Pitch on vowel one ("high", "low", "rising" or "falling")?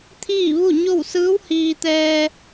falling